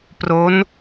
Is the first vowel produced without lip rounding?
no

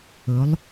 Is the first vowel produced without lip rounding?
no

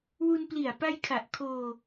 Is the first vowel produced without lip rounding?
no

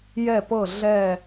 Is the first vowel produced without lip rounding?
yes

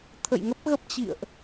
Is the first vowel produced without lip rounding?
yes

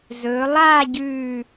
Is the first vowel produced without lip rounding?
no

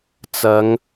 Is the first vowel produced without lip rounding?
yes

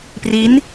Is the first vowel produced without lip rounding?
yes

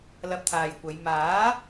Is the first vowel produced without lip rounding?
yes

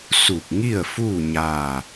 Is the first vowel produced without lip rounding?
no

